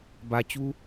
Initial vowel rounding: unrounded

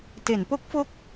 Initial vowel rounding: unrounded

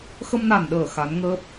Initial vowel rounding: unrounded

